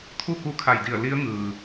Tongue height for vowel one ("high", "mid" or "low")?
high